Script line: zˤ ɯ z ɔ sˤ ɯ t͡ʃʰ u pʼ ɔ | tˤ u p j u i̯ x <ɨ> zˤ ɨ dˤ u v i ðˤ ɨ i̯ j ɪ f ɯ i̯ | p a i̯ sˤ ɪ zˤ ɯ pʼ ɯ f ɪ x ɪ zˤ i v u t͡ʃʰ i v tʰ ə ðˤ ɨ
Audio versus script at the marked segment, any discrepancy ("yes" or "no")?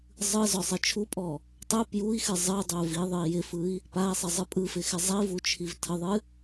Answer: no